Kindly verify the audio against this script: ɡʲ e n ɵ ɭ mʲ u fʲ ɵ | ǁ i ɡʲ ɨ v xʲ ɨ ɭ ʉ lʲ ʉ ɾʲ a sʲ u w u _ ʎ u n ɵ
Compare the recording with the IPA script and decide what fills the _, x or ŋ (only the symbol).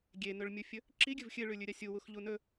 x